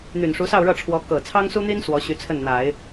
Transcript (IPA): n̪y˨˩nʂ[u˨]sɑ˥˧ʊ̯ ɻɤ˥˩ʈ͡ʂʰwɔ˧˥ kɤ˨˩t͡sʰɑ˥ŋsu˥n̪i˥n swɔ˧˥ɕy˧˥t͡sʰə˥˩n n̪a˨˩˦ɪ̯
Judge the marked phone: incorrect: u˧˥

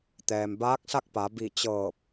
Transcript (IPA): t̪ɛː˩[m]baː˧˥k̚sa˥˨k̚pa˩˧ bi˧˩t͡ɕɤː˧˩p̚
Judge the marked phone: correct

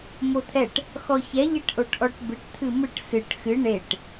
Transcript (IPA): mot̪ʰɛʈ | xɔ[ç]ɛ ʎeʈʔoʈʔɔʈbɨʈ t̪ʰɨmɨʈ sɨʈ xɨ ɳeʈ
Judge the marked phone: correct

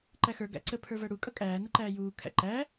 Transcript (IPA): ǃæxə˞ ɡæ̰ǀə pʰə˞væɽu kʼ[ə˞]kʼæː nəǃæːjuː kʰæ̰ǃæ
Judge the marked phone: incorrect: ʌ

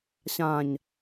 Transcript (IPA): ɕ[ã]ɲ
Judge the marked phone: correct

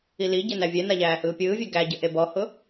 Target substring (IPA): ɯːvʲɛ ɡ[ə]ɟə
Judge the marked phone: incorrect: æ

